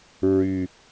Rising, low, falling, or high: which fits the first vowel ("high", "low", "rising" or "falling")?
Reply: low